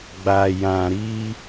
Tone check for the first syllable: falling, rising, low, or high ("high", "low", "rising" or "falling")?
low